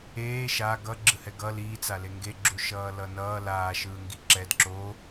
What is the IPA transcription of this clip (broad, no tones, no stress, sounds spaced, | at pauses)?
eː ʃ a ɡ ʌ ɡ͡ǁ ɯ h ɛ ɡ ʌ l iː t͡s a l e ŋ ɡ e ɡ͡ǁ u ʃ ʌː l ʌ n ʌː l aː ʃ ɯː ŋ ɡ i ǁ ɛ d ǁ o